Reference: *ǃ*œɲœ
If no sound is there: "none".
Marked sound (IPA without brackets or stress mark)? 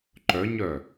ǃ